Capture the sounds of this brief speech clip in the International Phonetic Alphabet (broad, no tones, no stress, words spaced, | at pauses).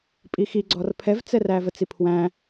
pʼixi ɡ͡ǀɔrpʰɛvt͡sɛ rævət͡sipʰwæ̃